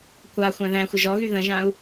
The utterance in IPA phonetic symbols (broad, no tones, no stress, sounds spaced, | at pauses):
kʷ a xʷ æ̃ ð æ̃ xʷ ə ʒ ɔ ɣ y ð ə̃ ʒ ã u̯